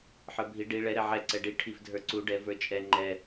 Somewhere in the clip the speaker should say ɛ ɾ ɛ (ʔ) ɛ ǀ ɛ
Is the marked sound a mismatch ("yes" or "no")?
yes